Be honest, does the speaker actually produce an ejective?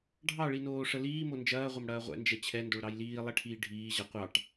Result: no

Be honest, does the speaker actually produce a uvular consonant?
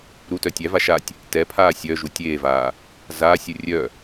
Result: no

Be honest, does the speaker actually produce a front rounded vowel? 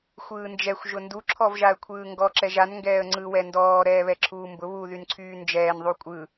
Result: yes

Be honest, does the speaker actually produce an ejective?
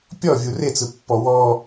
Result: no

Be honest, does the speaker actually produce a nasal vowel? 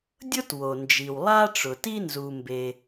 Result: no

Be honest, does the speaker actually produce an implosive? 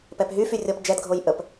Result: no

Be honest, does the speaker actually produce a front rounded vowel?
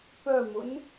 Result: yes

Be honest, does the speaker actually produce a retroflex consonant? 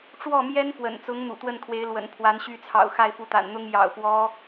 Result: yes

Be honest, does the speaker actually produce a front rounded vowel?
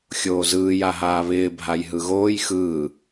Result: no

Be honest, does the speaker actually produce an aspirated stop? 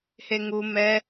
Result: no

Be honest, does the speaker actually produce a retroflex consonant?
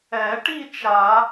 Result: yes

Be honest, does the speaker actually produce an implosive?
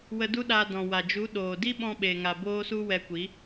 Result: yes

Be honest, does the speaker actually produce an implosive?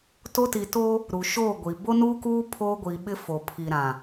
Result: yes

